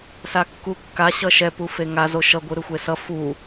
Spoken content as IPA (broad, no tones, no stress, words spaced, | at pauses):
sakːukːa ɕʌʃɛp ufeŋa zoʃʌ ɡʷɯɾɯxʷesʌ fu